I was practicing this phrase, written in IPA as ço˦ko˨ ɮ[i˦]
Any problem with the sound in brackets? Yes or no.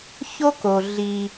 no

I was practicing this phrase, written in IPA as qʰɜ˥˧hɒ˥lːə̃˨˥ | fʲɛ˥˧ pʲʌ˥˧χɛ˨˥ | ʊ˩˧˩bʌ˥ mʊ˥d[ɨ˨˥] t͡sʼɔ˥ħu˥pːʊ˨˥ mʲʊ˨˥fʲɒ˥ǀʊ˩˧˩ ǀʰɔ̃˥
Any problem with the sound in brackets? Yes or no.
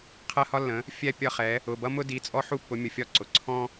yes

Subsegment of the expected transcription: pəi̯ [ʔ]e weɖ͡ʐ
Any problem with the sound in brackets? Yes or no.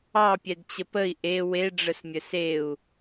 no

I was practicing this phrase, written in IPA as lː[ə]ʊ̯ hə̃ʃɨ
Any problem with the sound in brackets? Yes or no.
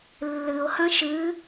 yes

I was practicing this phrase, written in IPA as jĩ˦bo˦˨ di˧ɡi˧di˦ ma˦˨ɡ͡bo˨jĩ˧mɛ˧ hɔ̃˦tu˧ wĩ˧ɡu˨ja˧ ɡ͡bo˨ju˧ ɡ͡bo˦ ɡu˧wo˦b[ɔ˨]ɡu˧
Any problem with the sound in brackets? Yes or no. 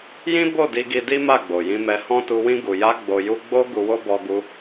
yes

